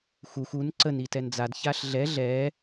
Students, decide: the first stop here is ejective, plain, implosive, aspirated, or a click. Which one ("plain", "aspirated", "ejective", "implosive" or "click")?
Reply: click